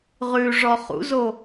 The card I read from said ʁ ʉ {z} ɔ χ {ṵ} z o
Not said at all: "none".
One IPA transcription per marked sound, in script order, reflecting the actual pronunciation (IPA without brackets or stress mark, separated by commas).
ʐ, ṵ